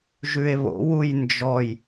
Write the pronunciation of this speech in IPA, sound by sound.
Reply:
ʒʉe̯βo̰ wujnd͡ʒɔj

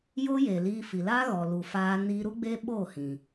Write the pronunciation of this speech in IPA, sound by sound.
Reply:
jo˦je˨ liː˧fi˨la˦ɣɔ˨ lu˨faː˧ ni˧ɾu˦ ɡ͡be˦ɓoː˦˨hĩ˨

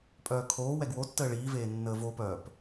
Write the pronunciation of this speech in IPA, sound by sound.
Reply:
pʼœːkʰoː wɛɡwotːəː ɭiːveːnːəː vopœːp

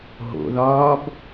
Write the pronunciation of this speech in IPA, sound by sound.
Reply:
ɦo̰ðɒːb

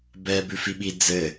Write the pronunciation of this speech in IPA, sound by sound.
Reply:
bɛːbʉfiɓi d͡zɘ

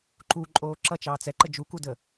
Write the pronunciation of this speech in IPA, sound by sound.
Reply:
ǃuǃʼoː ǁʌt͡ʃɑːt͡s ɛǃə d͡ʒukudə

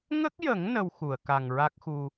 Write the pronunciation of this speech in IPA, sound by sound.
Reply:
ŋə˦˥k̚jə˨˩˦ŋ nə˧wxu˨˩˨ə̯ ka˨˩ŋɹa˦˥k̚xu˧

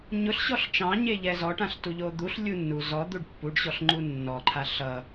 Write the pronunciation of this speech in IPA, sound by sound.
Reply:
ɲʊɬɕɔɬ t͡ʃɑ̃ɲe ʎɛzɔʈãɬ tuʎod̪uɬlʲu nːu zɔd̪uɖ pːuɖɕɔɬ ŋ͡ǃunːɔǃʰa ɬʌ

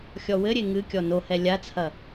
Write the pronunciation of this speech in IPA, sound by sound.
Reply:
xʲɔwɘɾʲe ŋɨ kʲɔnohɛ lʲat͡sʰɐ

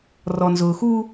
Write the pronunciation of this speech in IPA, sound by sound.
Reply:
rɔ˨nzʊː˨xuː˦

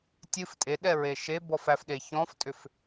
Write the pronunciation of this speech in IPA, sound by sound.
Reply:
tʲɨf tʼeɗɛɹe ʃebɔf æfɗe çɔ̃ftʼʏf

